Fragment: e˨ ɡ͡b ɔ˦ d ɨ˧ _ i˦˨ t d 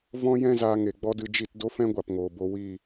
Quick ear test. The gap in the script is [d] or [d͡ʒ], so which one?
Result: d͡ʒ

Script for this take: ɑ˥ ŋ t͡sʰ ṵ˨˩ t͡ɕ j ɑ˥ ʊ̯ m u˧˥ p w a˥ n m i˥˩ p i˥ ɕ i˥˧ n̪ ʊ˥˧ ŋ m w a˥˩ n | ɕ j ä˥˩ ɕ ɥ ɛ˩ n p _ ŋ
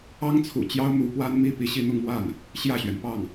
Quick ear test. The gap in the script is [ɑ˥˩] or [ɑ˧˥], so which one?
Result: ɑ˥˩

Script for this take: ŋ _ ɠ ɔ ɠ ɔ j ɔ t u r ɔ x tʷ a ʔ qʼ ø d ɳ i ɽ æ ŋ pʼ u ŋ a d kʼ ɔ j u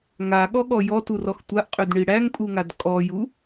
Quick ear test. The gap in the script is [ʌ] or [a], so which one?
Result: a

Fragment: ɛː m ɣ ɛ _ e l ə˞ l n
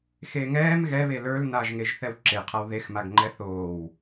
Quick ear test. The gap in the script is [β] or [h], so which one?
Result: β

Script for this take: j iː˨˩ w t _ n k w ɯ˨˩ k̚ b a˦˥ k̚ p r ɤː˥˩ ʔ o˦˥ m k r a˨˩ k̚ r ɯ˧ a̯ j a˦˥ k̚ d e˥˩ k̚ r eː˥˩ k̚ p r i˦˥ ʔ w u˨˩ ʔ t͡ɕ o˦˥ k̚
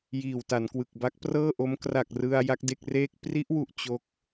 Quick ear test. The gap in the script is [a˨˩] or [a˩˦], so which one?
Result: a˩˦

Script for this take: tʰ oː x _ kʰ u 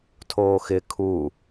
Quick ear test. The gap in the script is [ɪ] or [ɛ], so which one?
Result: ɪ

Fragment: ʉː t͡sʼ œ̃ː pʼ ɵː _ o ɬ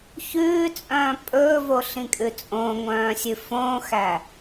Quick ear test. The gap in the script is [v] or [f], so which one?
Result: v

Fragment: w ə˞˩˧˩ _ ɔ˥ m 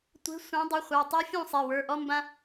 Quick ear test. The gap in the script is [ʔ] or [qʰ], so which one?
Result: ʔ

